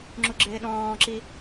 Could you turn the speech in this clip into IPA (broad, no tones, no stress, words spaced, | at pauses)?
ŋ͡ǁuɡ͡ǁɪːɗɔ̃ːǁi